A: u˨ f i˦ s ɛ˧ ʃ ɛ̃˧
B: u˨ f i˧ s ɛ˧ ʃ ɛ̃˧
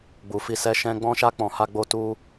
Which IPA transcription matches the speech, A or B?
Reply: B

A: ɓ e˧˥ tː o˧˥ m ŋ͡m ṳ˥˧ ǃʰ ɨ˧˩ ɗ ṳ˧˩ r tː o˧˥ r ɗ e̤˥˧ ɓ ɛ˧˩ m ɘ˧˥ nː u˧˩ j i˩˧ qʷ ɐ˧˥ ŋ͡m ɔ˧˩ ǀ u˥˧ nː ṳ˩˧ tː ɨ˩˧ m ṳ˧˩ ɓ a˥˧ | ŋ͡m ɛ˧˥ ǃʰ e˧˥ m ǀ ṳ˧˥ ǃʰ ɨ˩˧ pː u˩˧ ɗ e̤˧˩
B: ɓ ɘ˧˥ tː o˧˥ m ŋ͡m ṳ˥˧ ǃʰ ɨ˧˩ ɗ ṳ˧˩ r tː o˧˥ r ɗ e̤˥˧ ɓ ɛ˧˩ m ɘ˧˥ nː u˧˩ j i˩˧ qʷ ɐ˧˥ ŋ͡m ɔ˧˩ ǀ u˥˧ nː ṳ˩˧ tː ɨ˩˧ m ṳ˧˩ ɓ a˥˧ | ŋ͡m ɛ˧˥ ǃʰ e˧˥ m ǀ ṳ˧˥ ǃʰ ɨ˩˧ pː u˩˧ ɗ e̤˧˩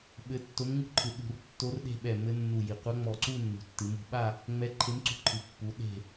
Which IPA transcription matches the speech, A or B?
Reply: B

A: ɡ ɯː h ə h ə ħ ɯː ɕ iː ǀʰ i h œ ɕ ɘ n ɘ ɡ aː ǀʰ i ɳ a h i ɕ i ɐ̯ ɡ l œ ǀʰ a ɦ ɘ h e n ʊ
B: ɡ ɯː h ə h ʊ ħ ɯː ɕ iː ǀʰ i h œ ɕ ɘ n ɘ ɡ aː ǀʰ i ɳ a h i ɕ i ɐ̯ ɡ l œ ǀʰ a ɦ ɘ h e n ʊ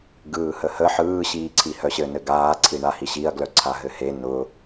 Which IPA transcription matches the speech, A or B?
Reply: A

